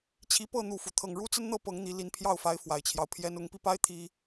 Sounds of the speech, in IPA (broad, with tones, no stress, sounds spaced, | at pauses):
t͡ɕʰ i˨˦ p ɤ˥˨ n̪ u˥˨ f u˩ t̪ʰ ɤ˥˨ ŋ ɻ u˦ t͡s ə˦ n n̪ ɤ˥˨ p ɤ˨˦ ŋ n̪ i˨˦ l i˨˦ n pʰ j ɑ˥˨ ʊ̯ f a˨˦ ɪ̯ f w a˨˩ ɪ̯ t͡ɕʰ j ɑ˦ ʊ̯ pʰ j ɛ˦ n ʊ˨˦ ŋ p i˧ p a˦ ɪ̯ t̪ʰ i˦